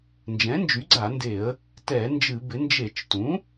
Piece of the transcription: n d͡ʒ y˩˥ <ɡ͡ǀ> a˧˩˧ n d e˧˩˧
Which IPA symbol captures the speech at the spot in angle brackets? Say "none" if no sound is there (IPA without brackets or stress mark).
ɡ͡ǀ